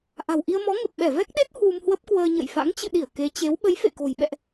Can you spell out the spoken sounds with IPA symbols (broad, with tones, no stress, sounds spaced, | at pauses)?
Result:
ʔ a̤˨˩ w ʔ i˧ ə̯ m ɔ˨˦ ŋ ə˨˩ p̚ ɓ ɛ˧˩ v ɛ˦˥ k̚ ɗ e˦˥ t̚ h w u˧ m h w ə˦˥ p̚ k w əː˧ ɲ ə̰˧˨ j f a̰˧˥ ŋ t͡ɕ ɨ̰˧˨ ɗ i˧˩ ə̯ k e˨˦ t͡ɕ e˨˦ w ɓ ə˨˦ j f ḛ˧˨ k o̤˨˩ j ɓ ɛ̰˧˨ ʔ